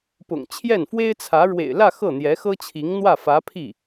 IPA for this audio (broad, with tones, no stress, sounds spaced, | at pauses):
p ʊ̰˨˩ ŋ t͡ɕʰ j ɛ˥˩ n f w e˥ ɪ̯ t͡sʰ ä˧˥ ɻ w ḛ˨˩ ɪ̯ l ä˥˧ x ɤ˥˩ n̪ j ɛ˧˥ x ɤ˥ t͡ɕʰ i˧˥ ŋ n̪ w ä˥˩ f ä˧˥ pʰ i˥˩